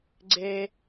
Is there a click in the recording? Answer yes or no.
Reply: yes